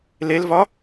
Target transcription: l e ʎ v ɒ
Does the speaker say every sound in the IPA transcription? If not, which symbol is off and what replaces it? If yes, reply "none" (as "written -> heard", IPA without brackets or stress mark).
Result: ʎ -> l